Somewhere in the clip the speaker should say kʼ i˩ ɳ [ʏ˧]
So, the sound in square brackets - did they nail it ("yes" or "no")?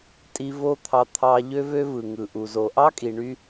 no